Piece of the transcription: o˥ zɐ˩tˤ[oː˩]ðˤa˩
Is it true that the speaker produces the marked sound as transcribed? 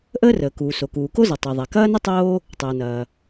no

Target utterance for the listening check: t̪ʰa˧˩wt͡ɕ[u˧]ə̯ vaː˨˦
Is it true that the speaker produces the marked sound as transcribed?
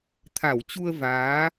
yes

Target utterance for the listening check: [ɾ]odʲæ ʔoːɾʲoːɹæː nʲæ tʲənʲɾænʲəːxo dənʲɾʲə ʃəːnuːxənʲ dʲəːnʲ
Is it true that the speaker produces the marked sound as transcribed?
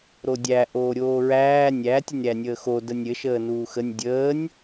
yes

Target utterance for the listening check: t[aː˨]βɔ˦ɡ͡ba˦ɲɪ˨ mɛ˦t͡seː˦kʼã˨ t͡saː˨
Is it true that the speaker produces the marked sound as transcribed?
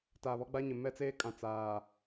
yes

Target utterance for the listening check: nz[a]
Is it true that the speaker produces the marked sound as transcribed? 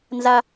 yes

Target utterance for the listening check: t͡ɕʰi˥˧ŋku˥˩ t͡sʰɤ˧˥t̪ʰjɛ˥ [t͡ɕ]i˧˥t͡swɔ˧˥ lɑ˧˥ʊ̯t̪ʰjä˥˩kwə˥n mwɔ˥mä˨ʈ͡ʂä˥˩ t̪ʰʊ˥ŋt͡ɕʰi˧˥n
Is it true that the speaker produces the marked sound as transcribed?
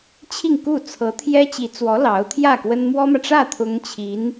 yes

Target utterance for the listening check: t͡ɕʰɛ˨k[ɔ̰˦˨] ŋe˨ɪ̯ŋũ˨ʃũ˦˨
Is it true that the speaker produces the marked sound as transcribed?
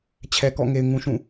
yes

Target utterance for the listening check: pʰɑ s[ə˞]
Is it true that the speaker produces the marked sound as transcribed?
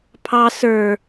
yes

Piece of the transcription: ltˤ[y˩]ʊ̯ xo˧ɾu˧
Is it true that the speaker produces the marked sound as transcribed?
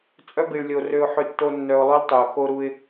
yes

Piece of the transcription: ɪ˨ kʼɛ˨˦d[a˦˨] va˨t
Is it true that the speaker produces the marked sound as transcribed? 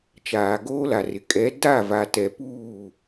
yes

